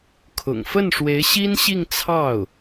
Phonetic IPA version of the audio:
kʰ ʊ̰˨˩ ŋ f ə˥˩ n ʂ w e˧˥ ɪ̯ ɕ i˥ n ɕ i˥˧ ŋ t͡sʰ ɑ˥˩ ʊ̯

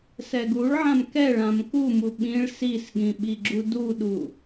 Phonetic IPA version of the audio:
s ɛ ɡ u ɭ ʕ ã m k ɛ ɭ ã m k u m u ɓ ĩ ɭ s i s ɠ ĩ ɓ i ɡ͡ǁ u d u ɗ u

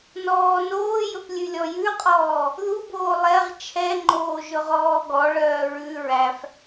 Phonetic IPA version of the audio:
n ɔː n oː j ɵ p lʲ ʉ lʲ ɔ j ʉ qʼ ɔː | ð u b oː lˠ ɛ ʁ t͡ʃʰ ɛ ŋ͡ǃ oː ʒ ɵ ʁ ɔː ɡ ɔ ɭ œː ɹ ʉ ɹ æ f

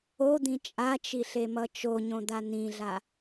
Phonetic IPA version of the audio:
o d̪ ĩ t͡ʃʼ a t͡ʃ i ɬ e m ʌ t͡ʃ o ɲ õ d̪ a n ĩ ɮ a

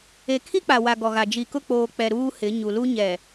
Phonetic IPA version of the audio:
e˨ kʰ i˦ k͡p a˨ w a˨ ɡ ɔ˨ ɣ a˨ d͡ʒ i˨ k ʊ˦˨ k͡p oː˨ k͡p ɛ˨ ɾ uː˦ h ɪ˨˦ ɲ u˨ l u˦ ɲ ɛ˨

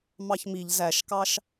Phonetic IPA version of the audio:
m ɑ ç m i ʎ z æ ʃ k ɑ ʃ

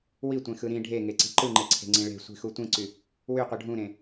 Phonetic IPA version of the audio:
w i tʷ ẽ x ɯ ɾ ĩ ɖʱ e ŋ e ǀ i̤ ǃ ɯ ŋ͡ǃ e ǀʰ e̤ ŋ͡ǀ ĩ ɭ e̤ sʷ i̤ x u tʷ ĩ ǀ y | w y qʷ ɯ ɖʱ ũ ɾ ẽ

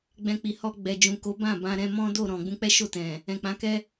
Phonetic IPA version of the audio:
ɡ͡b ɛ̃˧ k͡p i˨ h ɔ˧ ɡ͡b ɛ˨ d͡ʒ ũ˨ k o˨˦ b ã˦˨ b ã˧ ɾ ɛ̃˧ m ɔ̃˦ d o˦˨ ɾ ɔ̃˨ ɡ͡b ũ˧ k͡p ɛ˦ ʃ o˦˨ t ɛ̃˨ | ɛ̃˨ k͡p ã˨˦ k ɛ˦

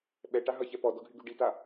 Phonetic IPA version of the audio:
ɓ ɛ ʈ a ɦ ʌ ç ɛ p ɔ d ɔ ɡʱ y ɡ y ɖ i t a

